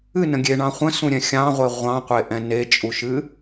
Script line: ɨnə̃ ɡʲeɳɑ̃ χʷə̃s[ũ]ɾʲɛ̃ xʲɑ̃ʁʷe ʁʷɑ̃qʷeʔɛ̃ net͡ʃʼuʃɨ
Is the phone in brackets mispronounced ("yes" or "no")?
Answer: no